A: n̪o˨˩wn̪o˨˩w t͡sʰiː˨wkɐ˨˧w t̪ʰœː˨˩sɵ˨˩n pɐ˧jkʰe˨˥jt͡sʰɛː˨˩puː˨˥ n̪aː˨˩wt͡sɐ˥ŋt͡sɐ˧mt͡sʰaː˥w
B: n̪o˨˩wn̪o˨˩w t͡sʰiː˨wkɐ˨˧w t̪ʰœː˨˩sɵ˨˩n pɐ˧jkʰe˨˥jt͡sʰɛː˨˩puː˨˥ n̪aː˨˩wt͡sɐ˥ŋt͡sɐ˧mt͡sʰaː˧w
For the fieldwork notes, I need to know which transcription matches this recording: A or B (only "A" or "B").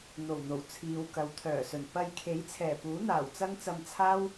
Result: A